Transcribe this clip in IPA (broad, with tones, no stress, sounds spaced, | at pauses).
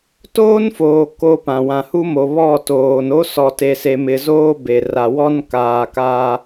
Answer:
t oː˦ n f oː˨ k o˦ p ã˨ w ã˨ h u˦ m o˨ β ɔ˦˨ t oː˨ n o˦ s ɔ˨ t e˨ s e˨ m ɪ˨ z oː˦ b e˨ r a˨ w ɔ˦ n k aː˨ k aː˦